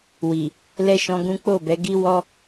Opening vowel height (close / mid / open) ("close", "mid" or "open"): close